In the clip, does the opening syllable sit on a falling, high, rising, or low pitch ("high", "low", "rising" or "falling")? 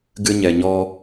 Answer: high